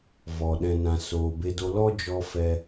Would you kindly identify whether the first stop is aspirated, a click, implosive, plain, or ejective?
implosive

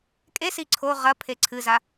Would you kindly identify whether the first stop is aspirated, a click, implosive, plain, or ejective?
ejective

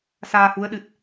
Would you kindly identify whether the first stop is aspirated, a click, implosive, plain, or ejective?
implosive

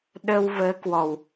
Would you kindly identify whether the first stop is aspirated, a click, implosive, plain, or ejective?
implosive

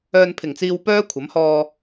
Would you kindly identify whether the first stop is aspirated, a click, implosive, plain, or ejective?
aspirated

